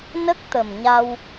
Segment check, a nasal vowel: absent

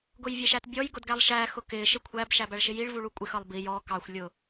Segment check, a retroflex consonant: present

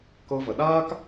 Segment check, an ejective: absent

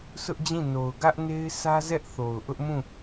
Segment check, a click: absent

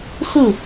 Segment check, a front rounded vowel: absent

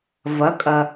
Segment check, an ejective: present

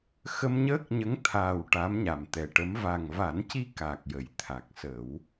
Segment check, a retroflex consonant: present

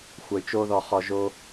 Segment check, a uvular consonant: present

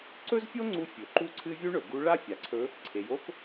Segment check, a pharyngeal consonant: absent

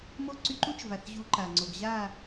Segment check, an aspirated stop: absent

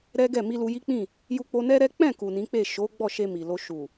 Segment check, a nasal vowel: present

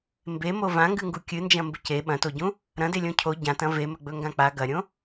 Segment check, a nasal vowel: present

